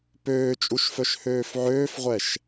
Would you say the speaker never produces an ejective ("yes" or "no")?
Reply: no